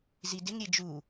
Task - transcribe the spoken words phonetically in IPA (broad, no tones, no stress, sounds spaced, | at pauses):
z i d ɪ ŋ ɾʲ e d͡ʒ u